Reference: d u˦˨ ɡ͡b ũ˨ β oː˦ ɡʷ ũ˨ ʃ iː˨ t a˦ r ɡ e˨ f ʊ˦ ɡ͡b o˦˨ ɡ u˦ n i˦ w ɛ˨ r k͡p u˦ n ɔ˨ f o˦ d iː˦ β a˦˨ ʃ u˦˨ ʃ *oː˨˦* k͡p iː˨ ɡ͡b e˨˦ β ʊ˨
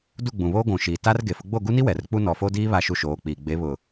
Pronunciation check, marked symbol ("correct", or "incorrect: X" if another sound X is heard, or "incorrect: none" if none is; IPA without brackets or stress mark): correct